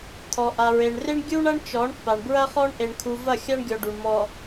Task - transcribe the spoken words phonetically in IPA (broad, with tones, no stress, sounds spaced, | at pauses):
t̪ʰ ɔ˨ ʔ a˨ ɹ e˨ ɳ r e˦ ɳ ɡʲ u˦ ɳ ɐ˦ ɳ t͡ʃ ɔ˨˦ ɳ pː a˨ ɳ b ɹ ɐ˦ χ ɔ˦ ɳ ʔ e˨ ɳ kʰ u˨ v ɐ˦˨ xʲ a˦ ɳ ɡʲ ɔ˨ ɖ u˨ ɳ m ɔ˨